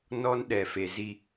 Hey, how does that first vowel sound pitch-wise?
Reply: high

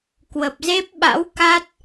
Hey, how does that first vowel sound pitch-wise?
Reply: low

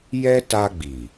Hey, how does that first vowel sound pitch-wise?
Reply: high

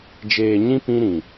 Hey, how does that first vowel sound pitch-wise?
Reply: low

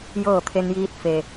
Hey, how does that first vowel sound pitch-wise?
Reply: falling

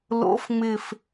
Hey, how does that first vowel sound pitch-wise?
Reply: rising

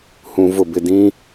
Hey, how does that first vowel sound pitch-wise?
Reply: low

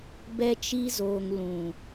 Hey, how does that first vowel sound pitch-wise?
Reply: high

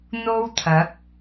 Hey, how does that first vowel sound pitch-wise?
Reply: high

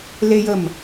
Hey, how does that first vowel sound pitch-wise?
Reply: high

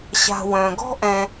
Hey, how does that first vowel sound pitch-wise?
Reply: low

